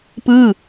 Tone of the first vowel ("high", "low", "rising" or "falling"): falling